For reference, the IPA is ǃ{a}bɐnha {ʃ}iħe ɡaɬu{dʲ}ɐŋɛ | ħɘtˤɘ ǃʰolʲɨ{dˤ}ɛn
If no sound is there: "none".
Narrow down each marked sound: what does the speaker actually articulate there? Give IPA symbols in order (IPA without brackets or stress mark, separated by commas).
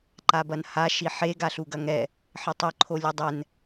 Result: a, ʃ, ɡ, dˤ